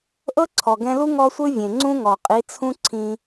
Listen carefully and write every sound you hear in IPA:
ʔ ɤ˦ ǀʰ ɔ˨ ɡ ɛ̃˧ l u˦ ŋ ɔ˦ sʷ ɯ˦ vʲ ẽ˨ ŋ͡ǀ ũ˦ ŋ ɔ˨ qʼ i˨˦ t͡sʰ ũ˦ ǀʰ ĩ˧

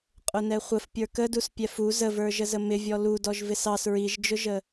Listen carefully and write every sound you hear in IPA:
qʼ ʊ n ɛ χʷ ə f pʲ ə˞ k ə d u s pʲ ɛ f u z ə v ə˞ ʒ ə z ə m ɪ vʲ ɔ l u d ɔ ʒ v ɪ s ɑ s ɹ i ʒ d͡ʒ ʊ ʒ ə

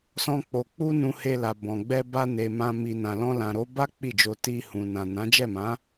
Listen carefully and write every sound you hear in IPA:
s ɔ̃˦ k͡p o˧ k͡p u˦ n ũ˧ h e˧ l a˨ b ɔ̃˨ ɡ͡b ɛ˧ b a˧ n e˨ m ã˧ m i˨ n ã˨ l ɔ̃˧ l ã˨ ɾ o˨˦ b a˦ k͡p i˦˨ d͡ʒ o˧ t i˧ h ũ˨ n ã˨ n ã˨˦ d͡ʒ ɛ˦˨ m ã˨˦

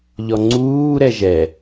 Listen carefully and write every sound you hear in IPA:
ʎ ɔ ŋ͡ǀ uː ɾ ɛ ʒ ɛ

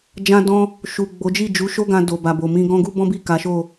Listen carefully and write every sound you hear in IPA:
d͡ʒ ã˧ d ɔ̃˧ | ʃ u˨ ɡ͡b o˨˦ d͡ʒ i˦˨ d͡ʒ u˨˦ ʃ o˦ ɡ ã˧ d o˨ b a˨ b o˨ m ĩ˧ ɡ ɔ̃˦ ɡ u˦ b ɔ̃˦ b i˦˨ k a˨˦ ʃ o˦˨

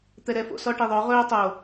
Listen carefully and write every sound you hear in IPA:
t̪ ɛ ɾ ɛ f o̰ s ɔ ʈ i ðˤ œ ʁ ɵː tˤ o

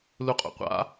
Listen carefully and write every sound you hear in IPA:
l u qʼ o̰ qʷ a̰

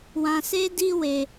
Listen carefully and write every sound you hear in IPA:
w ã˧ s e˦ d i˦ w e˧

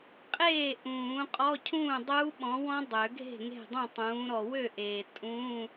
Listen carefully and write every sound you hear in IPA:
qʼ eː˥˩ ʔ ũː˨˩˦ qʼ ɔ˧˥˧ cʰ ũː˥˩ dˤ uː˦˥ ɓ ɔ̃˨˥ w ɔ̃˦˥ dˤ ø˨˩˦ ɡʱ e̤˥˩ ŋ e̤˥˩ dˤ ũ˥˩ tˤ ũː˨˥ ɾ ɔ˨ w ø˥˩ ʔ eː˨ tʼ ũ˧˥˧

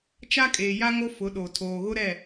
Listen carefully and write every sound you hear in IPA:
t͡ʃ a˦ kʼ eː˨ j a˦ ŋ o˦ f ʊ˨˦ ɗ o˨ tʰ oː˨ ɣ ʊ˦ ɾ ɛ˦˨

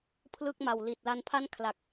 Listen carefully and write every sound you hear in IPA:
pʰ l ɯ˥˩ k̚ m a˨˩ w l i˨˩ t̚ l a˧ n pʰ a˥˩ n kʰ l a˨˩ k̚

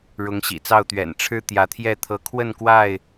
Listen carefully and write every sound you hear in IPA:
ɻ ʊ˨˦ ŋ ɕ ḭ˨˩ t͡s ɑ˥˨ ʊ̯ t̪ ɥ ɛ̰˨˩ n ʈ͡ʂʰ ɻ̩˦ t̪ j ä˨˦ t̪ʰ j ɛ˥˨ t̪ʰ ɤ˨˦ kʰ w ə˥˨ n k w a˥˨ ɪ̯

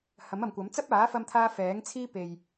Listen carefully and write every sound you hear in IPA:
h ɐ˨˥ m ɐ˨ m kʷ ɐ˨˥ m t͡s ɐ˥ p̚ aː˨˥ f ɐ˥ m t̪ʰ aː˥ f ɛː˨˥ ŋ t͡sʰ iː˥ p e˨ j

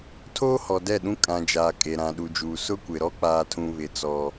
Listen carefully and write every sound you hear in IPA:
tʰ oː˦ h ɔ˨ d ɛ˦˨ ɗ ũ˦ kʼ ã˨ d͡ʒ aː˨ kʼ e˨ ɾ ã˨ ɗ u˨ d͡ʒ uː˨ s ʊ˦ kʷ ɪ˨ ɾ ɔ˦ k͡p aː˦ tʰ ũ˦ β ɪ˦˨ t͡s ɔ˦

